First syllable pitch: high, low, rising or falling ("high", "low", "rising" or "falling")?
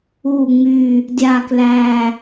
low